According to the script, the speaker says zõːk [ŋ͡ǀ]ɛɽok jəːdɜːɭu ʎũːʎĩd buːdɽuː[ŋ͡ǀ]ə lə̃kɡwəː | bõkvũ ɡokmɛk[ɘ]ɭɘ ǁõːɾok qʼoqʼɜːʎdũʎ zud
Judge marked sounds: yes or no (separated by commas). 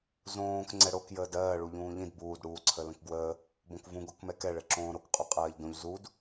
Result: yes, no, no